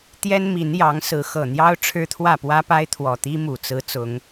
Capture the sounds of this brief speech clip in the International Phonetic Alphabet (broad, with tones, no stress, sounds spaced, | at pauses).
t̪ j ɛ˦ n m i˨˦ n j ɑ˨˦ ŋ s ɹ̩˨˦ x ɤ˨˩ n̪ j ɑ˦ ʊ̯ ʈ͡ʂʰ ɻ̩˦ t̪ʰ w ä˥˨ p w ä˦ p a˦ ɪ̯ t̪ʰ w ɔ˨˩ t̪ i˦ m u˨˩ t͡s ɹ̩˨˦ t͡s ʊ˨˦ ŋ